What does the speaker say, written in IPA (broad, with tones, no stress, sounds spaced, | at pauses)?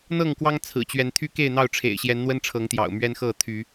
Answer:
n̪ ɤ˥˨ ŋ k w ɑ˦ ŋ t͡sʰ ɹ̩˨˩ t͡ɕ ɥ ɛ˨˦ n t̪ʰ y˦ k e˥˨ ɪ̯ n̪ ɑ˥˨ ʊ̯ ʈ͡ʂʰ ḛ˨˩ ɪ̯ ɕ j ɛ˨˦ n n̪ w ə˦ n ʈ͡ʂʰ ɤ˨˦ ŋ t̪ j ɑ̰˨˩ ʊ̯ m ɥ ɛ˦ n x ɤ˥˨ t̪ʰ y˨˦